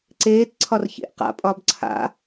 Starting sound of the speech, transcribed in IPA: ǀ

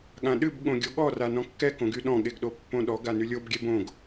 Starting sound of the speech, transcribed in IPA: ɠ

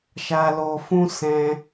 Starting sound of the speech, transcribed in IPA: ʃ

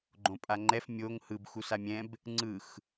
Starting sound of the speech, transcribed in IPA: ɡ͡ǃ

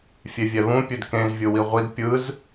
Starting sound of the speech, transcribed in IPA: fʲ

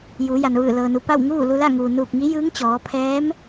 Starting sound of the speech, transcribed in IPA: j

